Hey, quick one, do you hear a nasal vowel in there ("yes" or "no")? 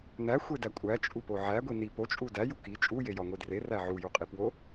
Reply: no